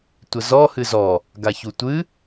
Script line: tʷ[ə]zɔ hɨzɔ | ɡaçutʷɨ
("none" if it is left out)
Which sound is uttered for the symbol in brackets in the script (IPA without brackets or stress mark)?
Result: ə